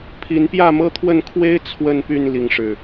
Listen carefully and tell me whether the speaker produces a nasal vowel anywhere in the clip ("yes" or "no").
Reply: no